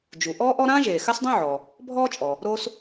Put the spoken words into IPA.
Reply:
d͡ʒ u˩ ʔ ɔː˥ ʔ ɔ˥ ɾ ãː˥ ʒ eː˩ x a˥ s dˤ ũ˥ ʕ ɔ˩ | bʱ ɔː˥ t͡ʃʼ ɔ˩ | ɾ o˥ s

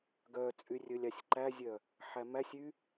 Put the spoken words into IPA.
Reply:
ɡ œ t͡sʼ y rʲ ɵ lʲ ɑ sʲ ǃ æ zʲ œ | ħ æ m æ sʲ y

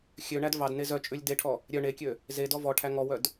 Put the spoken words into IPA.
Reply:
xʲ ø ɳ æ d v ɑ d n e z œ t͡ʃʼ ʉ lʲ d e ʈʰ ɔ | ɾʲ œ ɳ e kʲ ø | z e d ɔ v ɔ ʈʰ æ ŋ ɔ w œ d

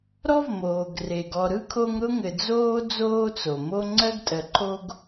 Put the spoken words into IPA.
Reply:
ɾ ɔ˥ v m oː˩ ɡ r e˩ ɡ ɔ˨ ɾ ɯ˥ kʰ o˦ ŋ ɾ ʊ˥ ŋ ɘ˨ d͡z oː˥ d͡z oː˦ t͡s o˩ m o˦ ŋ͡ǀ ɜ˥ ɡ tʼ ɜ˨ ǃʰ o˥ ɡ

